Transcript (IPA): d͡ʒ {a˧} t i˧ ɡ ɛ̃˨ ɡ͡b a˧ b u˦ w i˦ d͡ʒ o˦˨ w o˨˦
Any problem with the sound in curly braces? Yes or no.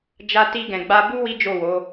no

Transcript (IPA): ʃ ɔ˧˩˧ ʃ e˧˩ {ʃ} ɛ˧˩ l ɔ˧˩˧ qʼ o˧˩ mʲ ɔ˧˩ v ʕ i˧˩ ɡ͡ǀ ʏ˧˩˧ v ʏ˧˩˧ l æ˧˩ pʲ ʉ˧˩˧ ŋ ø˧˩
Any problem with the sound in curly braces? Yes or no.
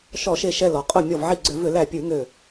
no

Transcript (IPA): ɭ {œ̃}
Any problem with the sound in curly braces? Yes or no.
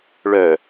yes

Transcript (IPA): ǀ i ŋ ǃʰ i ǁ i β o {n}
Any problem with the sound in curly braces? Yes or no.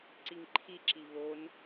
no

